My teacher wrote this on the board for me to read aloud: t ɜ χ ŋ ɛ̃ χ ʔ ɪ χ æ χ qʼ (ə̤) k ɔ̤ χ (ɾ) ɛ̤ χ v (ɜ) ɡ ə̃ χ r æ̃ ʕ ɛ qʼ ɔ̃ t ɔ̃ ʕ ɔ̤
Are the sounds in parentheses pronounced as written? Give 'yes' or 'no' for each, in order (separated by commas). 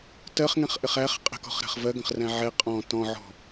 yes, yes, yes